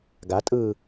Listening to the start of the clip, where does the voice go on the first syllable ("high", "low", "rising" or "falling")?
rising